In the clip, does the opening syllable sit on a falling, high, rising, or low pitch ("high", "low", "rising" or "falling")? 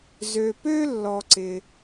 low